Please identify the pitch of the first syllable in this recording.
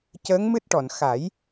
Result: rising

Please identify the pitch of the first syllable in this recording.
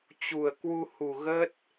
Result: low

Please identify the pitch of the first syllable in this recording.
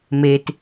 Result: low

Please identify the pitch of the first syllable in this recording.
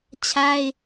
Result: high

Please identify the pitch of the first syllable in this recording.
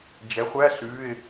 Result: rising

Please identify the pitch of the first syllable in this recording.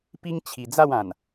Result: high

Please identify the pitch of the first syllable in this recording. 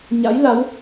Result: rising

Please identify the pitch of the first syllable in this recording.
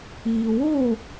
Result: low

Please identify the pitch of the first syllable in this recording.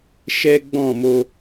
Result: high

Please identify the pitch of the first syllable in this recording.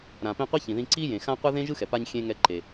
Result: low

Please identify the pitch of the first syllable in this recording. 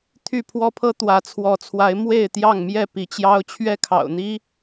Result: falling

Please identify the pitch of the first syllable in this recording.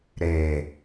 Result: low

